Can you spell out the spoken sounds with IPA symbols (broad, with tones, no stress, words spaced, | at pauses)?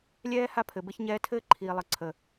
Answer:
lʲɛː˦ ha˦pʰɘ˨ bɘ˦çɲɛː˦ tʰɘː˦ǃʰiː˨lˠə˨ǀʰə˨